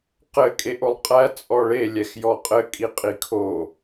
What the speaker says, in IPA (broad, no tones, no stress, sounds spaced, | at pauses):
q ɘ kʼ e ʔ o lˠ qʼ æ t͡sʼ ɔ ɭ e lʲ ɛ x j ɔ qʼ ɘ kʼ i qʼ i kʰ o